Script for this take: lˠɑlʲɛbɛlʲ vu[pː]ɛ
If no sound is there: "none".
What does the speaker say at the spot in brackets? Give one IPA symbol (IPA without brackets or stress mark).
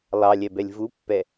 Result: pː